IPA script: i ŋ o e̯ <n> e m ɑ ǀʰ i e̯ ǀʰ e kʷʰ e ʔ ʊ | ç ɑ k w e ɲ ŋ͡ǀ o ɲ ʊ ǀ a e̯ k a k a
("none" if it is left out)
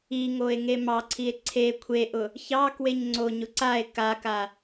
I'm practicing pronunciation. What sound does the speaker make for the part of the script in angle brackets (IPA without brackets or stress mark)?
ŋ